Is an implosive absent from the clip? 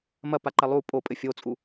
yes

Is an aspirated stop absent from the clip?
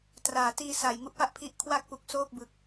no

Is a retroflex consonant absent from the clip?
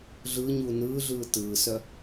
yes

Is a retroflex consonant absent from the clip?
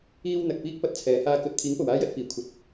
yes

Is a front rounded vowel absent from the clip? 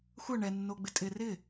yes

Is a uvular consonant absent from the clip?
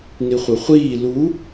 no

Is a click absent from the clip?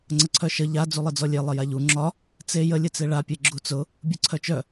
no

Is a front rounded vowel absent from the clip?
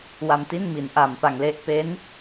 yes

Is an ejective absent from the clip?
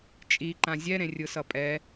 no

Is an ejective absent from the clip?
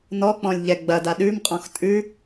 no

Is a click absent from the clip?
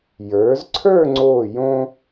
no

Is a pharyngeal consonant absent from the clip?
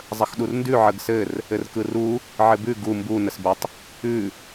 no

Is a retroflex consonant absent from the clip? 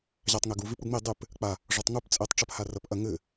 no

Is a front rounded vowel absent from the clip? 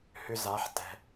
no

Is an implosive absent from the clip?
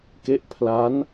yes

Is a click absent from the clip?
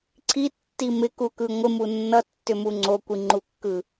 no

